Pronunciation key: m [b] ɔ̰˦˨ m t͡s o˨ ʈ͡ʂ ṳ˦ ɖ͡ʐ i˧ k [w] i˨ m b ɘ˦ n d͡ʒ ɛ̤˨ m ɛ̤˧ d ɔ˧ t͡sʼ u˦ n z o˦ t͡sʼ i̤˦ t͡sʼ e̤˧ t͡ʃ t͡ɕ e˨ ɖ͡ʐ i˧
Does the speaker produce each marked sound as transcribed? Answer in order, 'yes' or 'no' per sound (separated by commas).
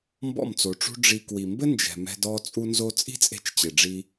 yes, yes